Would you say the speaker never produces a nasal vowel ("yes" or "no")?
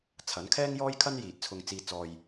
yes